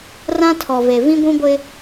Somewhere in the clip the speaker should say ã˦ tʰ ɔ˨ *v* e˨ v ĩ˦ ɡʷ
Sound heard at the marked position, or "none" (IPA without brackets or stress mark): v